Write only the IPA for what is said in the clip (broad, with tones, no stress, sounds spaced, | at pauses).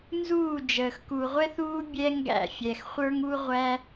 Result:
n z uː˦˨ d͡ʒ əː˨ x k u˨ ʁʷ ɛ˦ θ uː˦ bʲ ɛ˦ ŋ ɡ æ̰˦˨ fʲ ɛ˨ x χʷ ə˞˦ ŋ u˦ ʁʷ æ˦